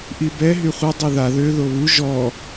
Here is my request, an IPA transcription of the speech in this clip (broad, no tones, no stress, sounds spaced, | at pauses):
ʔ i b ɛ ɦ y χʷ œ dˤ o ð a ð ø ð o β u ʒ ɔ